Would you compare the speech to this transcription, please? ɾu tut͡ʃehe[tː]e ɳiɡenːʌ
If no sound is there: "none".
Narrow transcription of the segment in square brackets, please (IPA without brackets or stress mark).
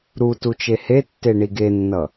tː